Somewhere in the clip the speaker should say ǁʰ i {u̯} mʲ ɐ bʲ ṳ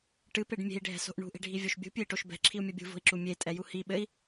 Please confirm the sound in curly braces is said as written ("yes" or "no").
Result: yes